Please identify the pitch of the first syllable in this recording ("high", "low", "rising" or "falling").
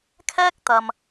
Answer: high